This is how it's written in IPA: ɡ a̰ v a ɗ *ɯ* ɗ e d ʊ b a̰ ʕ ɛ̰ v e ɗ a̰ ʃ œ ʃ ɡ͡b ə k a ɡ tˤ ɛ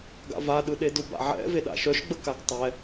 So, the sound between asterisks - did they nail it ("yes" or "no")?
yes